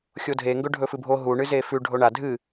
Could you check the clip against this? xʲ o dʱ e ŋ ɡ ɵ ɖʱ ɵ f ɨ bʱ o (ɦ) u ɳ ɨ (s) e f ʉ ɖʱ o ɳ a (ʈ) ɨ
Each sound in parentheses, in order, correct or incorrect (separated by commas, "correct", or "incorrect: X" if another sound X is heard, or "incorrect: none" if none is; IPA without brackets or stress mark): correct, incorrect: z, incorrect: dʱ